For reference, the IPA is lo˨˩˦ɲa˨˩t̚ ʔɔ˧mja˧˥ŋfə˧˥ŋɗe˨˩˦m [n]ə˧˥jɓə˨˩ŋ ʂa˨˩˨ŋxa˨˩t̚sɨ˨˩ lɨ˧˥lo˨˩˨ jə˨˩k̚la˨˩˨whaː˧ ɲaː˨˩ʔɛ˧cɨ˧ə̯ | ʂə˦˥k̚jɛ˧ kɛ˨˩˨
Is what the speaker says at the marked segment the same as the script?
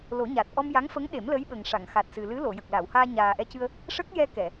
no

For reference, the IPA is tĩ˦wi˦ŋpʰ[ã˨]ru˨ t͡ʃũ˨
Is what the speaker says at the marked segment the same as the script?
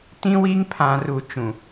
yes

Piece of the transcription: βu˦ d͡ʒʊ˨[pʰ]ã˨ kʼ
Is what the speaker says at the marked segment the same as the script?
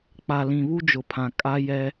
yes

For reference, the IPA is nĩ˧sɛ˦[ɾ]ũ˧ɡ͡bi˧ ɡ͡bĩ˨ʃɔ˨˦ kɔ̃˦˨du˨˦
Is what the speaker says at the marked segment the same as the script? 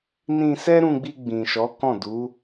yes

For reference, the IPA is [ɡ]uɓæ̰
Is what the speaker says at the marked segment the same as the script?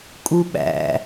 no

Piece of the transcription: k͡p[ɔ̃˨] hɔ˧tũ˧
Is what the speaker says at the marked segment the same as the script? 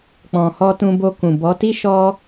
yes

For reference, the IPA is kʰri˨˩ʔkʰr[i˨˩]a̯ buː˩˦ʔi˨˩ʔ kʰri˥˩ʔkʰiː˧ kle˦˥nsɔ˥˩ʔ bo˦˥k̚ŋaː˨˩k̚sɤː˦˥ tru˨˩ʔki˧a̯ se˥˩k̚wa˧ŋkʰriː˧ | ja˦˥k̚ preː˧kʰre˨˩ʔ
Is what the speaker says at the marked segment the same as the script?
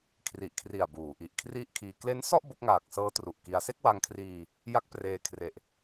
yes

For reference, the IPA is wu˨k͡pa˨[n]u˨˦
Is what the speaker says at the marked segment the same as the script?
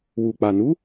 yes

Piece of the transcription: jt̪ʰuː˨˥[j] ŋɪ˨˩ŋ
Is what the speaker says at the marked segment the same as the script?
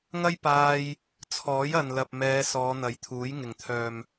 yes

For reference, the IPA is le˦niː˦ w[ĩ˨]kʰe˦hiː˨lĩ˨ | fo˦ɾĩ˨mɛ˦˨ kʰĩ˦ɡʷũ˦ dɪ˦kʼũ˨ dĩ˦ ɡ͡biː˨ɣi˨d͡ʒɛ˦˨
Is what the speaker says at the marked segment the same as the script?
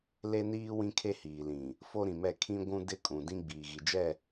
no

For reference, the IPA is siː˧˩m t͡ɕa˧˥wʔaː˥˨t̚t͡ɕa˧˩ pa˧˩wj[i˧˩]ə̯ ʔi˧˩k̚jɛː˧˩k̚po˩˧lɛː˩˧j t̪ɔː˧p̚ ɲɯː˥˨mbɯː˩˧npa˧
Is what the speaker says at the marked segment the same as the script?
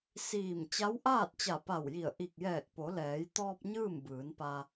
yes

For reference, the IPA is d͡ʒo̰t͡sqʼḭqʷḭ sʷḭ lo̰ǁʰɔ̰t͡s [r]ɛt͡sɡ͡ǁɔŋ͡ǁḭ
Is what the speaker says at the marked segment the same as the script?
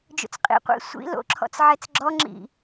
no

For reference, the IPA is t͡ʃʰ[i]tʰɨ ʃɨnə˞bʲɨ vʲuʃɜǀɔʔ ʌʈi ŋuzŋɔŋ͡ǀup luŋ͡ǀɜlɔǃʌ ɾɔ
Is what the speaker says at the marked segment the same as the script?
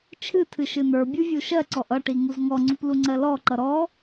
no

